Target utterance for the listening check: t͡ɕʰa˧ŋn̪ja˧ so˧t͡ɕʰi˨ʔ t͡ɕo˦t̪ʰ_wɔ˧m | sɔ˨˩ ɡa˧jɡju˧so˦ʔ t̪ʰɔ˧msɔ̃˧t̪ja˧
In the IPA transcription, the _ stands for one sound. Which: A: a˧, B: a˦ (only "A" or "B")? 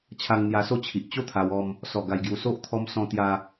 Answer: A